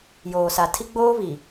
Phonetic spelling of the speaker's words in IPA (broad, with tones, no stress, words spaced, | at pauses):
joː˨sa˨tʰi˦ɡ͡boː˦ βi˨